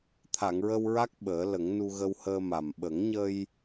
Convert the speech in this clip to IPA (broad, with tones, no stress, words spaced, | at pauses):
t̪ʰa˨˩˨ŋɹə˧wɹa˦˥k̚ ɓəː˨˩˦lə˨˩˦ŋnu˧ ɣə˧whəː˧ ma˨˩m ɓə˨˩˦ŋɲə˧j